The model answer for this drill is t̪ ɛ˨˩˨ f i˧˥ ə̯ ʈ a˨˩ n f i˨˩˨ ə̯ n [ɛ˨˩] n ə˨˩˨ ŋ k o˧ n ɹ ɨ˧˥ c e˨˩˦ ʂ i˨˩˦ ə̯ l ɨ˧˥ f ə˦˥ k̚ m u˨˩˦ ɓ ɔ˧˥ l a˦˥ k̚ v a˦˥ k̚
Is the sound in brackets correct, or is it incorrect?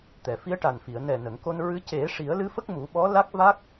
correct